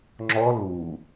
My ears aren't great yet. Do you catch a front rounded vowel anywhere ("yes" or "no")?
no